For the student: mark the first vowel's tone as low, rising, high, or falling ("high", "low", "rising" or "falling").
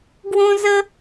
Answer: high